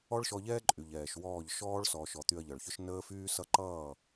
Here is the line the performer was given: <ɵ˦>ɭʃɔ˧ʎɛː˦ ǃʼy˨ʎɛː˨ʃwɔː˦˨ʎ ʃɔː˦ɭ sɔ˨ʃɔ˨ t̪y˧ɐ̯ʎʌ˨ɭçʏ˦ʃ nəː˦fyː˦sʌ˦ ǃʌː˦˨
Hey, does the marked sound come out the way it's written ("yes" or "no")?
no